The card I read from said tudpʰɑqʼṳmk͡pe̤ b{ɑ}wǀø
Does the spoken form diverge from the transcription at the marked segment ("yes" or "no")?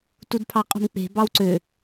no